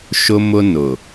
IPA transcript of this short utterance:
ʃʊ˦mʊ˦ nʊ˨

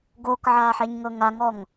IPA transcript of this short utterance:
ɡokʕaħeɲŋɤ ŋaŋɔŋ

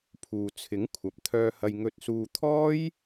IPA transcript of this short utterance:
pʰuː˨t͡sʰɪ˨˥ŋkʷʰɐ˨p̚ t̪ʰœː˧hɐ˧j ŋɵ˧t̚suː˧ t̪ʰɔː˥j

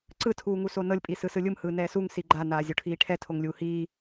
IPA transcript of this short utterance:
ǀɯ tʰuːŋusonɤlʲ pʼisɯsɯlʲɯm hɯːnɛːsuŋ siɡ͡ǃa naːzʲoʈʰiːʈʰɛ tʰoŋlʲuːhiː

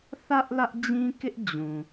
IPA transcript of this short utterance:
θä˦ʔ lä˦ʔd͡ʑĩ˦kɪ˦ʔ d͡ʑũ˨

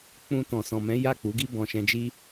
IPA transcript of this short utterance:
k͡pũ˧ tɔ̃˨sɔ̃˨mɛ̃˨˦ ja˦˨k͡pu˨˦ɡi˦ bɔ̃˧ʃɛ̃˧d͡ʒi˦

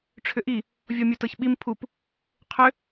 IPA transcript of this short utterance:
ʈ͡ʂʰʏʔi | vʲɔmʲutɤçɓim pʰup | qʰʏ

